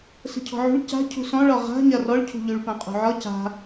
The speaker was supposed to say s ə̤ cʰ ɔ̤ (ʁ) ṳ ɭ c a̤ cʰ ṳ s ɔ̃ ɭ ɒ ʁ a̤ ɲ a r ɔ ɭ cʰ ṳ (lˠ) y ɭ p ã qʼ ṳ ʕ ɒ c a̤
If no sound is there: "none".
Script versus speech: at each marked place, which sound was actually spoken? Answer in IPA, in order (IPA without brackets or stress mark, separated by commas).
ʕ, ʎ